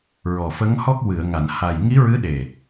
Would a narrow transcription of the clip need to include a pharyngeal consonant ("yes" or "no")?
no